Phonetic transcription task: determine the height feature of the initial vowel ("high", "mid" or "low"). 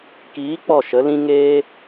high